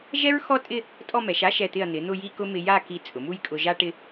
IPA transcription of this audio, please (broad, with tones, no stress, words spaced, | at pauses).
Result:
ʒɛ˥ɹxɔ˥˧tʼɪ˥˧ | tʼɔ˥˧mɛ˩˧ʃ a˥ʃɛ˧˩t̪ɪ˧˩ɐ̯ n̪ɪ˩˧ n̪ʊ˥˧ji˥˧kʊ˥ mɪ˧ja˥˧ki˧˩ t͡sʼʊ˩˧mu˥j kʼʊ˧ʒa˥ʈɪ˥